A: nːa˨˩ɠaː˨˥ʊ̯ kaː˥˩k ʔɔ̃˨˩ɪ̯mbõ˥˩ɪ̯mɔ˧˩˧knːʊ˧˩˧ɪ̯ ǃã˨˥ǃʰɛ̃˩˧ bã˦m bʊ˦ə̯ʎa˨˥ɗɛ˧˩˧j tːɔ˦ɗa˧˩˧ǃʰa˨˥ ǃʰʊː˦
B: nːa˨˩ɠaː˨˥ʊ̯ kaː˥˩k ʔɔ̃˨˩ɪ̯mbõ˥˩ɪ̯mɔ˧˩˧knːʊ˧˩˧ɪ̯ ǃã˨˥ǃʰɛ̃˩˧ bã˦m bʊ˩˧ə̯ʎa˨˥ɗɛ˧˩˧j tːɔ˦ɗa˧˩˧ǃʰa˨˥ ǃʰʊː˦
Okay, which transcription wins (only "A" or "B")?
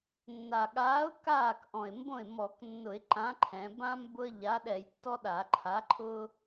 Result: A